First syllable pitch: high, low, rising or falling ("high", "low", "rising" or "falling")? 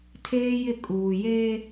high